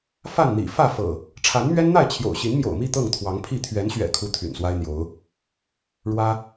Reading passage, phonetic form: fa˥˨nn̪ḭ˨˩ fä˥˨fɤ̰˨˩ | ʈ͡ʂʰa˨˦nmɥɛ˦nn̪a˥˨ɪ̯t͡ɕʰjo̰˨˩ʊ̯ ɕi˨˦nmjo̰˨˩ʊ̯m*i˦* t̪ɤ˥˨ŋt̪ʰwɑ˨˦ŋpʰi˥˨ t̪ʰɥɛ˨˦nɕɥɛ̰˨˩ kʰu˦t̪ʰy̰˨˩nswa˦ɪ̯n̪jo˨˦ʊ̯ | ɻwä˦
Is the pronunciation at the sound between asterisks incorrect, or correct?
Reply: incorrect